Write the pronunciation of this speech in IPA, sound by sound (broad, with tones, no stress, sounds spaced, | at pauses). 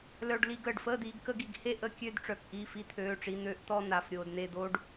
l œ˧ ɖ l i˧ ɡ əː˧˩ ɖ f əː˥˨ d̪ iː˧ ɡ k ə˧ ɡ i˧˩ ɡ h e˥˨ ʔ ə˥˨ kʲ ø˥˨ d ʈ͡ʂ œ˧˩ k ʔ iː˥˨ f i˧ t̪ʰ øː˩˧˩ ʈ͡ʂ i˩˧˩ n̪ øː˧ ʔ t̪ ɔ˥˨ n̪ a˩˧˩ f ɾʲ oː˩ d n̪ e˧˩ d̪ oː˧ ɖ